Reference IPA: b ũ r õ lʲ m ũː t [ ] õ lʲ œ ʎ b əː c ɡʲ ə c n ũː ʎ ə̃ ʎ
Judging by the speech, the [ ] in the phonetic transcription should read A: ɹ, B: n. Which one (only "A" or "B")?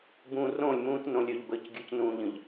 B